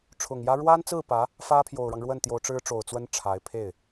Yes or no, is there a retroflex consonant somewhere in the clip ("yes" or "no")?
yes